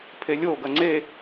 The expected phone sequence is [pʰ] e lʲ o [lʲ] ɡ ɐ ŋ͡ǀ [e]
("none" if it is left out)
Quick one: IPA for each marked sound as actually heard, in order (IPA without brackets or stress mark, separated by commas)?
pʰ, none, e